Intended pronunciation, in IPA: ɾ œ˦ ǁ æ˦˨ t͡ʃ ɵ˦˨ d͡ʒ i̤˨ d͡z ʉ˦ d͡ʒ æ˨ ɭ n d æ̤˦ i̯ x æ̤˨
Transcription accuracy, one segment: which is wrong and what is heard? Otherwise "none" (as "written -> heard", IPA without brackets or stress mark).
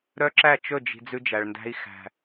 none